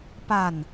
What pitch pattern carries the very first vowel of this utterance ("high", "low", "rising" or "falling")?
falling